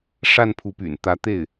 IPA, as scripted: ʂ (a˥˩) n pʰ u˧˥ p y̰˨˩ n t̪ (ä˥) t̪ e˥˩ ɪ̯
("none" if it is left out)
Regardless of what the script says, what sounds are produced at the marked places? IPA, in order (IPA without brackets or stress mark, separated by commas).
a˥˩, ä˧˥